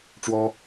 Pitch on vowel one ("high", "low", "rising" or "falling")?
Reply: high